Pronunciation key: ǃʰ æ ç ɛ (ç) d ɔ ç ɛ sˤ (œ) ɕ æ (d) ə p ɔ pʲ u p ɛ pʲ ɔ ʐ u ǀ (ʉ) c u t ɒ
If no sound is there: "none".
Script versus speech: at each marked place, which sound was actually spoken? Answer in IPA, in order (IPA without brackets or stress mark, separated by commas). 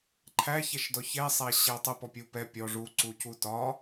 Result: ʃ, æ, tˤ, u